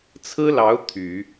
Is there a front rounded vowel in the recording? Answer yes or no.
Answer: yes